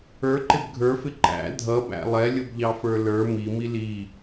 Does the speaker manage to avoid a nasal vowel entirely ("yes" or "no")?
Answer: yes